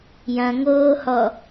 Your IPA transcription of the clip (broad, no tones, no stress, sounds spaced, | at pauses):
j ɐ̃ ŋ oː h ɔ